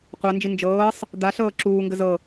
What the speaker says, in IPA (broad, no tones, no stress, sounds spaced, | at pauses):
qʷ a n d͡ʒ i n d͡ʒ ɤː sˤ | d̪ a ɬ ɤː ǁ uː ŋ ɡ ə z ɤ